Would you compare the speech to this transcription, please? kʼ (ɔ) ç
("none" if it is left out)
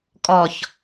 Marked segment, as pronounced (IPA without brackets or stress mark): ɔ